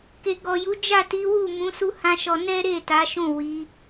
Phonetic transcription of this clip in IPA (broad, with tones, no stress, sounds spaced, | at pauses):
k e˨ ɡ ɔ˨ j u˨˦ d͡ʒ a˦˨ t i˨˦ w u˦˨ m ũ˨˦ s u˦ h ã˦ ʃ ɔ˧ n ɛ˦ ɾ e˦˨ t a˨˦ ʃ ũ˦˨ w i˨˦